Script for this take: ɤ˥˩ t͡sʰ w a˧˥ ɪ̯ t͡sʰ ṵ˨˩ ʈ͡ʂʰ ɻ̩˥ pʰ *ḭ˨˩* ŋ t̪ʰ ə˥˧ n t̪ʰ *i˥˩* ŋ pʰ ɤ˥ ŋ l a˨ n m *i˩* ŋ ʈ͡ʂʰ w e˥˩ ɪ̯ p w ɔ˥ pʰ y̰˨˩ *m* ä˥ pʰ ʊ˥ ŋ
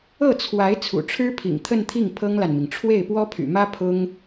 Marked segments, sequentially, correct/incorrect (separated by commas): correct, correct, correct, correct